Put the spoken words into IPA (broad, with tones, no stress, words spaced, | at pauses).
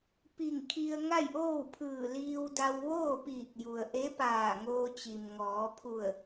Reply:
pi˧˩ŋkʰi˧ə̯ ŋa˥˨jʔoː˥˨wpʰɯː˧˩ liː˧wda˧w ʋoː˥˨piː˧˩k̚ju˩ə̯ʔe˧˥ paː˧˩ŋoː˧t͡ɕi˩mŋɔː˩˧ pʰu˧˩ə̯